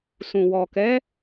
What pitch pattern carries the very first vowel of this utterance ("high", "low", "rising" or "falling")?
low